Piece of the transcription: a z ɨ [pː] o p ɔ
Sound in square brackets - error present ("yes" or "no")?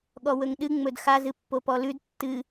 no